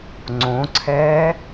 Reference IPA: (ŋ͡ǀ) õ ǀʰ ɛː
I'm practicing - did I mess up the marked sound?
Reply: no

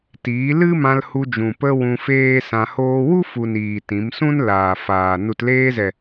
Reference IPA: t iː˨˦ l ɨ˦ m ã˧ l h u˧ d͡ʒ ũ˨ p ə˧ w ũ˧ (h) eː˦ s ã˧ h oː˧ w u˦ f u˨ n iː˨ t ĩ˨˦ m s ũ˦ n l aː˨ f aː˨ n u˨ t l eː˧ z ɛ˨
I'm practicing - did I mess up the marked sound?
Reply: yes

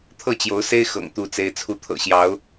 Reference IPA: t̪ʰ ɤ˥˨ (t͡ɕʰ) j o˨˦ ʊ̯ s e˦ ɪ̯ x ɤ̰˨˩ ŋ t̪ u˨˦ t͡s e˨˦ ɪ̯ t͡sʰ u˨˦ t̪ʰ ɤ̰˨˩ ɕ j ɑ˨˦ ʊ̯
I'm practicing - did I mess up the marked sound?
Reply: yes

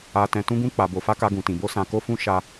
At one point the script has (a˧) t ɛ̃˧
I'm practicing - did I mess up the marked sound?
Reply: no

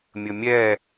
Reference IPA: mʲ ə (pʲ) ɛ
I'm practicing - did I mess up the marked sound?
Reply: yes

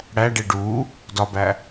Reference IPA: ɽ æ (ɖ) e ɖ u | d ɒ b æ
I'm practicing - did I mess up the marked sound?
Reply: no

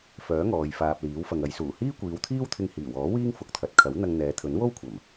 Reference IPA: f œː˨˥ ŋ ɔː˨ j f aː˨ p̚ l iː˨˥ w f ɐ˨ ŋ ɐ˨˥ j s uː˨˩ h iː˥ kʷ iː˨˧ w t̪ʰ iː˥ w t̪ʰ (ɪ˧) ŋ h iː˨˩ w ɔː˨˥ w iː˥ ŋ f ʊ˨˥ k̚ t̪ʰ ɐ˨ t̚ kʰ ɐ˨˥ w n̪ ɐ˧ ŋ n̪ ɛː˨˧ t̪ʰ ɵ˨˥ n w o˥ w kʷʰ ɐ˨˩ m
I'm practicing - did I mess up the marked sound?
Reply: no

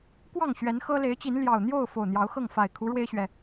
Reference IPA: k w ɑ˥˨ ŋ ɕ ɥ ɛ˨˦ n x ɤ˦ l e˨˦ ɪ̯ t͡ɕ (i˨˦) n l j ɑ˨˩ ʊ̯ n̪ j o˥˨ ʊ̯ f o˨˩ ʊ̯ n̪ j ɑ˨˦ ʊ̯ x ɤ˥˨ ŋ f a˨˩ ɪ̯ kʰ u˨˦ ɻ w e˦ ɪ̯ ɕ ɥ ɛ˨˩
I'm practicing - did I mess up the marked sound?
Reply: no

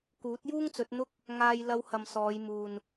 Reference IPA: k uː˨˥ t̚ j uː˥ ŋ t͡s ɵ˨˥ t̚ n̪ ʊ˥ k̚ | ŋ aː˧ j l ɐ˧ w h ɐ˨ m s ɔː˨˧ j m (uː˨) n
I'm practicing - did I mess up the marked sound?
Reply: no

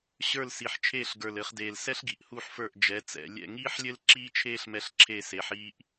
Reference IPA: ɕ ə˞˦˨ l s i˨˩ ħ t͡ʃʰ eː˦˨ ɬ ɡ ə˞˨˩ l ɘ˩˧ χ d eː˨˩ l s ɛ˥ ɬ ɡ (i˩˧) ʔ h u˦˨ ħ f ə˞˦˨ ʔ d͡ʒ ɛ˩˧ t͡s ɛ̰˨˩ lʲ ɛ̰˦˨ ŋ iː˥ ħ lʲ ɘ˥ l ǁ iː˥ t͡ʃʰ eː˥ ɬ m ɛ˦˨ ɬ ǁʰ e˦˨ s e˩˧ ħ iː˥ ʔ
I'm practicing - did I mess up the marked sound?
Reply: no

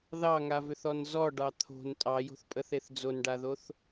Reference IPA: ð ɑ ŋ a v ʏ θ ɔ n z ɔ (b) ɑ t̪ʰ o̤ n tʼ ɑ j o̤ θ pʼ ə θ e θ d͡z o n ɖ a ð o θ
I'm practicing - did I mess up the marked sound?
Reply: yes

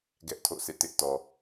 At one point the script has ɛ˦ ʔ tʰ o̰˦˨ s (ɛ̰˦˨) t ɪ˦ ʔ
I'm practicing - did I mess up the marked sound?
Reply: yes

